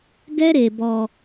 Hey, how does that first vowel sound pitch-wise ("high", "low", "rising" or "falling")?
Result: high